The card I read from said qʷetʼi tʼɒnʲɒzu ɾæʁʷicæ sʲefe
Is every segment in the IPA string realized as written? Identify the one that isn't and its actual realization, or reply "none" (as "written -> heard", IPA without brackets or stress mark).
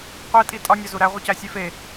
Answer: none